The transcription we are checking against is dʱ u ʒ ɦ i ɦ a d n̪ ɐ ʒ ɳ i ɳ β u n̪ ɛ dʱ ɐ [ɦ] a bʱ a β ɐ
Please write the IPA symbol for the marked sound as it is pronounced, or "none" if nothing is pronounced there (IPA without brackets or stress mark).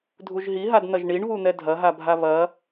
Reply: ɦ